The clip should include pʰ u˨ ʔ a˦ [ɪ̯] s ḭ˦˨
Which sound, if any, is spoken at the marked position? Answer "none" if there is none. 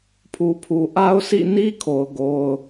ʊ̯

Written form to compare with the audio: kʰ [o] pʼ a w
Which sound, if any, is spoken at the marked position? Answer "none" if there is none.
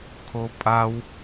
o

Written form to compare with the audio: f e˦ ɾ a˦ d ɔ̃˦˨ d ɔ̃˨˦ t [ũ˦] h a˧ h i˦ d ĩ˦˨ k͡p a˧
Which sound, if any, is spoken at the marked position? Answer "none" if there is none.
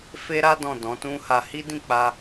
ũ˦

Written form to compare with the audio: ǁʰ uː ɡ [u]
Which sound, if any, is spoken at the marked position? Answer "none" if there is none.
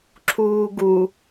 u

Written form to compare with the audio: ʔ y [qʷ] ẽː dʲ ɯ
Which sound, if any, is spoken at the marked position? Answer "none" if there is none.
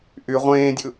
ʁʷ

